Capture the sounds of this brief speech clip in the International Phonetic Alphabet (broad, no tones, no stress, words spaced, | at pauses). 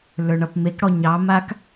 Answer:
lə˞ɳʌpmekɽɔ ɲɑmak